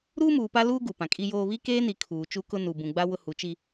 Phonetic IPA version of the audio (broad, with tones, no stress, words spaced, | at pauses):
ɾuː˦muː˨pa˦luː˦ ɡu˨pã˨kʼi˦joː˦ βi˦keː˦ni˨ kʰuː˨ t͡ʃu˦kʊ˦ nu˨ bũ˨ɡ͡ba˦ wʊ˦hu˨˦ t͡ʃi˦